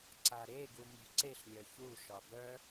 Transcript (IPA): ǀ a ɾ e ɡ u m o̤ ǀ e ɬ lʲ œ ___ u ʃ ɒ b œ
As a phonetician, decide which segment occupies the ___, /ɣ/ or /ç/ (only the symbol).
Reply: ç